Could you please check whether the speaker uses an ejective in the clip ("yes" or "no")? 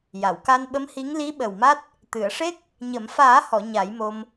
no